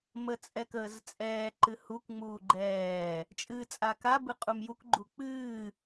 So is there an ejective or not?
yes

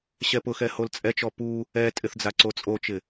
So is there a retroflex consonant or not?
no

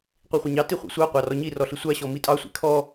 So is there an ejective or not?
yes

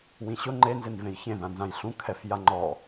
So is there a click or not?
yes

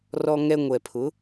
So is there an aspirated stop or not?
yes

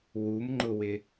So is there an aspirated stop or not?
no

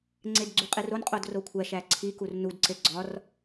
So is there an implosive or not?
no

